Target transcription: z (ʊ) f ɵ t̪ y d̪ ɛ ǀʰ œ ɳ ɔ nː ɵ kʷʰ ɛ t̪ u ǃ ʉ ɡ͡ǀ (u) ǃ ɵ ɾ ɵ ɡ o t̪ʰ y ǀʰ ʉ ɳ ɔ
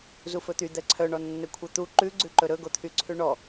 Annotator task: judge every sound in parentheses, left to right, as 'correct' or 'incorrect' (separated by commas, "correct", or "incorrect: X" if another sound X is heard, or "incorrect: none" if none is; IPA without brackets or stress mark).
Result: incorrect: u, incorrect: ʉ